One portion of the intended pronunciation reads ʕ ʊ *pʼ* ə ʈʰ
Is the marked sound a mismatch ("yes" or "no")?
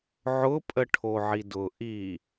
no